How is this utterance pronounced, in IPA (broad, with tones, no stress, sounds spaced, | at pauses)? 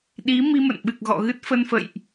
ɗ i˨˦ m i˧ m ə̰˧˨ n ɓ ɨ˨˩ k̚ ɣ ɔ̰˧˨ ɣ ɨ˦˥ t̚ f ə˧ n f ə̰˧˨ j ʔ